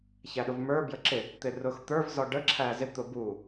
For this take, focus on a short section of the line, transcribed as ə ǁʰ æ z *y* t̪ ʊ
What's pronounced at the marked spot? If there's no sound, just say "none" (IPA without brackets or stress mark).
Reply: ɪ